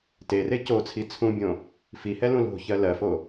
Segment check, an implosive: absent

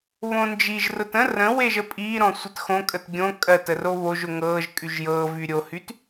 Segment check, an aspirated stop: absent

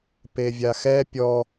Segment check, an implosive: absent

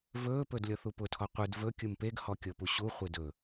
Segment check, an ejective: absent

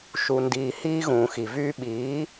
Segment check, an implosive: present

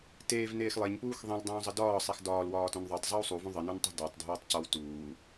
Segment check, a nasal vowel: present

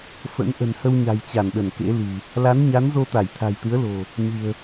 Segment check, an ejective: absent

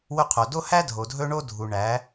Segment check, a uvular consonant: present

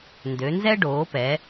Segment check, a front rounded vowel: present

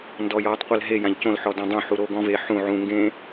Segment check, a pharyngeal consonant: present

